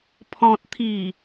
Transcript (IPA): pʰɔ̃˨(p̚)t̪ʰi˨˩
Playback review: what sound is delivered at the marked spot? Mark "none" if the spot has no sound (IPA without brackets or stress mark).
t̚